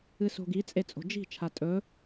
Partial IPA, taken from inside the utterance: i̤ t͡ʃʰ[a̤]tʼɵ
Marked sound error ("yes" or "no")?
yes